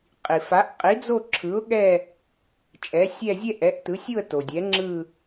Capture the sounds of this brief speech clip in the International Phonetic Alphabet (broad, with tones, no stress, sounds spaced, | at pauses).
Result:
qʼ i˩ f a˨˥ ʔ qʼ i˨˥ d͡z o˥˧ ǁʰ ɯ˨˥ ʊ̯ ɠ ɛ˥˧ | t͡ʃʼ ɛ˨˥ sʲ ɛ˥˧ zʲ ɛ˥˧ ʔ ɛ˨˥ ʔ t ɯ˨˥ sʲ u˥˧ ə̯ t o˩ dʲ ɛ˨˥ ŋ͡ǁ ɯ˥˧